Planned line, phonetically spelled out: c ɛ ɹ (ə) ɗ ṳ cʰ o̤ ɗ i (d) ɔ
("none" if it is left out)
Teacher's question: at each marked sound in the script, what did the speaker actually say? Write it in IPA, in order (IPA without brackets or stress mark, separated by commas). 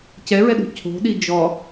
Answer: ɛ, d͡ʒ